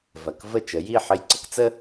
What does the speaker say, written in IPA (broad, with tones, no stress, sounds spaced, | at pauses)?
v ɐ˩ k v ə˥˩ t͡ʃ ə˩˥ j i˥˩ ħ ɘ˧ j ǀ ə˥ k t͡s ə˥